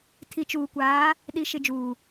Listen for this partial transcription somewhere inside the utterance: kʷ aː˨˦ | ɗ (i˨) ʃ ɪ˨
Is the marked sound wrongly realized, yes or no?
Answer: no